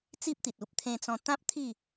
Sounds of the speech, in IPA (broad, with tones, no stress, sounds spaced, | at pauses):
t͡s i˦ p̚ t̪ i˨ t̚ u˨ p̚ t̪ʰ ẽ˧ t͡s ɔ̃˧ t̪ ã˦ p̚ t̪ʰ i˥˧